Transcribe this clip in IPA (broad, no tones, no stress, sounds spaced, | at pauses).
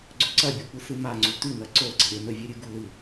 ɡ͡ǀ ɵ ǀ ɐ bʲ u kʷ ɨ s ɨ m a ŋ͡ǀ u t ʉ n ɐ ǀ o ɡ͡ǀ ɐ ɾʲ ɵ n ɵ vʲ ɨ ɾʲ ɨ ɡ u l ɨ